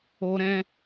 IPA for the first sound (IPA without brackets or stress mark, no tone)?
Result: o